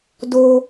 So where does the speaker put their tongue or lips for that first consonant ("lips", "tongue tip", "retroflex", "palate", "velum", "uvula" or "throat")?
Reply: tongue tip